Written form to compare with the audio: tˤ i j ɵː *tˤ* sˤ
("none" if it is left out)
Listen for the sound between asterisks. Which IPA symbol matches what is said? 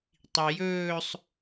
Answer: none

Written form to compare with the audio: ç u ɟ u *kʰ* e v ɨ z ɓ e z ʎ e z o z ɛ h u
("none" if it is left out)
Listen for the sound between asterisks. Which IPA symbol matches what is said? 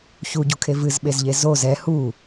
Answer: kʰ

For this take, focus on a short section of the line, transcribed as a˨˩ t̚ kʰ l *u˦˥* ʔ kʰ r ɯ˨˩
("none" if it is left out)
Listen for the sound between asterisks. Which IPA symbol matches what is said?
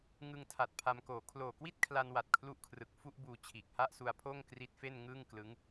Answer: u˦˥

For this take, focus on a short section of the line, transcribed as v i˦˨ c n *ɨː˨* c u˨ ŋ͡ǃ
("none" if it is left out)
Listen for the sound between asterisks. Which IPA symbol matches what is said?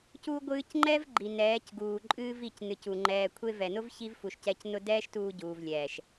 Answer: ɨ˨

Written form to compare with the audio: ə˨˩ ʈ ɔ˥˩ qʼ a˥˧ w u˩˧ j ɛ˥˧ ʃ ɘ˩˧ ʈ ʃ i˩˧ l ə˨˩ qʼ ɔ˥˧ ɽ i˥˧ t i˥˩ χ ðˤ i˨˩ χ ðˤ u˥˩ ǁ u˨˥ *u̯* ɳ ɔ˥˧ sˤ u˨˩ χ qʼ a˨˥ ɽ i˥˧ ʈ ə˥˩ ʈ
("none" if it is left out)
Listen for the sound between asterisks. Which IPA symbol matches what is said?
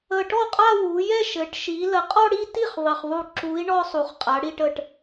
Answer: i̯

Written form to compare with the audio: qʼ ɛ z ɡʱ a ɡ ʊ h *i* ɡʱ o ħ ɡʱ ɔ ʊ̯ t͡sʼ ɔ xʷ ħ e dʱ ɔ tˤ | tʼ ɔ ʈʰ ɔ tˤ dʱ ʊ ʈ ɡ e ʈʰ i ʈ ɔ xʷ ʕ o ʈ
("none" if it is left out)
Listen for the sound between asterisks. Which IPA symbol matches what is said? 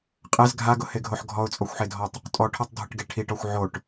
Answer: e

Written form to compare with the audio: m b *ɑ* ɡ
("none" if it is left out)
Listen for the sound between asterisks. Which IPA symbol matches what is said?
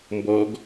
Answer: ɔ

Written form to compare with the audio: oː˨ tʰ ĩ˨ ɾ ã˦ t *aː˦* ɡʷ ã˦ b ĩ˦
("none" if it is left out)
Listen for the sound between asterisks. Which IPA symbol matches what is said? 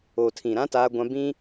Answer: aː˦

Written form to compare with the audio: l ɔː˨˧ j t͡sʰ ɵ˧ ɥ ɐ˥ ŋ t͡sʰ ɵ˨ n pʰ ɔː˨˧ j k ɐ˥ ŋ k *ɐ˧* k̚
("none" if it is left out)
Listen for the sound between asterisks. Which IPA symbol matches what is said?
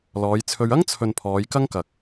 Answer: ɐ˨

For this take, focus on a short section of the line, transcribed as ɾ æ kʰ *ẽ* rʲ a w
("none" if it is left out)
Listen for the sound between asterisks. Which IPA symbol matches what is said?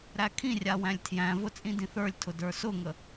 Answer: ĩ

